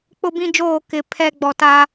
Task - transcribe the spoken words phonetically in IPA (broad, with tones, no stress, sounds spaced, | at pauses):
k͡p ʊ˦ b ĩ˦ d͡ʒ oː˦˨ k ɪ˨ pʰ ɛ˦ ɡ͡b ɔ˨ t a˦